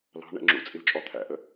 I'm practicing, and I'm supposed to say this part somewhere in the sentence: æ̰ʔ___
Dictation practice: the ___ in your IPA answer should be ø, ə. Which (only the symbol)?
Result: ə